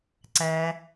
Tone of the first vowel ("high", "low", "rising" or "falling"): low